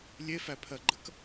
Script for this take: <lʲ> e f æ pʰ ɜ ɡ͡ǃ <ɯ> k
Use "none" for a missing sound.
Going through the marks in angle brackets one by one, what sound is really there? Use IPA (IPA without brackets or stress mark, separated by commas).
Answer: lʲ, ə